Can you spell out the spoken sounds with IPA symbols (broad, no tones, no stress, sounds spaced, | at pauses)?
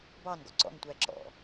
b ɑ n ɡ ɔ̰ ǀ ɔ̰ n tʷ æ ǁ ɔ̰